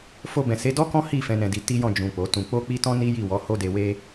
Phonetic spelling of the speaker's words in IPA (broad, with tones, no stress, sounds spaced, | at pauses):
f o˧ b ɛ̃˨ s e˨˦ d ɔ˦ k ɔ̃˦ h i˦˨ f ɛ̃˨˦ n ɛ̃˧ d i˧ t i˦ j ɔ̃˦˨ d͡ʒ ũ˨ k͡p o˨˦ t ũ˧ k͡p o˦ k͡p i˦ t ɔ̃˦ n i˦ j i˦˨ w ɔ˨˦ h o˦ d e˧ w e˦